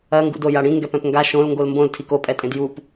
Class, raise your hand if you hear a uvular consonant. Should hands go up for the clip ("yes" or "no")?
no